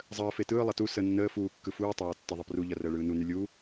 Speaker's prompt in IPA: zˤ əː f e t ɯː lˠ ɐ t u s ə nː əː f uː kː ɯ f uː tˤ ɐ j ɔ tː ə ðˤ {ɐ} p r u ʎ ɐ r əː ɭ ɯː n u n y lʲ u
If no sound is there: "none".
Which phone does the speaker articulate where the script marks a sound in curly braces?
ə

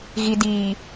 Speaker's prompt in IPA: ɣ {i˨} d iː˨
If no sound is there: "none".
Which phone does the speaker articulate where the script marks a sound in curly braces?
i˨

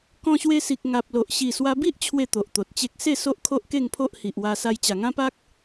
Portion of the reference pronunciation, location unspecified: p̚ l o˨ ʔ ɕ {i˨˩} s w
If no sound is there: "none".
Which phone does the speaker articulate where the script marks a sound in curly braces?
i˨˩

